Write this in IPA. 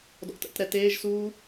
d ɔ̰ t ə̰ t ɾ ɛ t eː ʒ s uː

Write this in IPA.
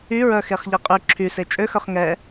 y ɹ œ x e χ ʎ e qʼ y ǁʰ y s e t͡ʃʼ ø x œ χ ŋ ɛ

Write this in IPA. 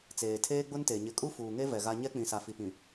t͡s eː˨ tʰ eː˦ ɡ͡b ʊ˦ n t e˨ ɲ ɪ˨ kʼ u˦ f uː˨ ŋ e˦ v ɛ˨ ɣ a˦ ɲ ɛ˦ k͡p ĩ˨ s a˨ f i˨ p ĩ˨

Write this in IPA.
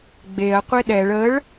ɡ͡b e ɐ̯ qʷ e ɗ ɛ ɭ ə ɭ

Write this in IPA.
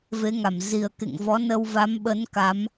v e˨˦ ŋ a˧˩ m z i˨˩ ə̯ k ḛ˧˨ ŋ v ɔ˨˦ n ə˧ w v a˨˦ m ɓ ə˨˦ n k a˨˦ m

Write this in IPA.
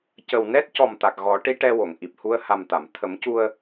c ə˨˩ w n ɛ˦˥ t̚ c ɔ˨˩ m t̪ a˨˩ k̚ ɣ ɔ˨˩˦ ʈ i˧˥ ʈ ɛ˧ w o˨˩˨ ŋ ʔ i˨˩ p̚ h u˧ ə̯ h a˨˩ m t̪ a˨˩˨ m t̪ʰ ə˨˩˦ m c u˧ ə̯

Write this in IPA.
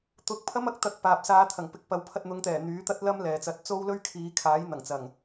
t̪ ʊ˧ k̚ pʰ ɐ˥ m ɐ˨ k̚ t̪ ɐ˧ k̚ p aː˨ p̚ s aː˨˧ t̪ʰ ɐ˨˩ ŋ p ɪ˨˥ k̚ p ɐ˨˧ w pʰ ɐ˧ t̚ n̪ ʊ˨˧ ŋ t̪ ɛː˨˩ n̪ yː˨˥ t̪ ɐ˥ t̚ l ɐ˥ m l ɛː˨ t͡s ɐ˧ t̚ t͡s o˥ w l ɵ˥ ɥ kʰ iː˨˧ kʰ aː˨˥ j n̪ ɐ˨˩ ŋ t͡s ɐ˨˩ ŋ

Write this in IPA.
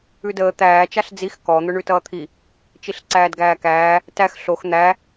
ʉ d əː t̪ æː t͡ʃ a ɬ d͡z i x k ɔ n̪ ʊ ɳ ʉ t ʌː t̪ʰ i | t͡ʃ i ɬ ǀ æː d ɡ æː k æː | t æ x ɬ o x n̪ æ

